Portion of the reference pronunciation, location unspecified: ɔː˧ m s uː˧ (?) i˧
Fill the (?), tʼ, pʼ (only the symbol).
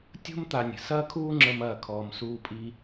pʼ